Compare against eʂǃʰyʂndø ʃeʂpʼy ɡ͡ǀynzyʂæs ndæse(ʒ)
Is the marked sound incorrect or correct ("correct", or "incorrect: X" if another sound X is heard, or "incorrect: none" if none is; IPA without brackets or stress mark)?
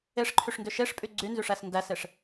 incorrect: ʂ